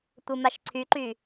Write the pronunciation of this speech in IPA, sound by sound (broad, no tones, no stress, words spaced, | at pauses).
tʷɯmaʃǀʰyǃy